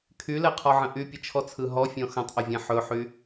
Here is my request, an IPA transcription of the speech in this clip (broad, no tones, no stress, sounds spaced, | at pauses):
kʰ y l ɛ qʰ ɔ ʕ ə̃ ʔ y pʲ ə t͡ʃʰ ɔ t͡sʰ ɯ ɦ ɔ fʲ ɔ̃ x ə̃ tˤ ʔ ə vʲ ɛ̃ ħ ɵ ħ y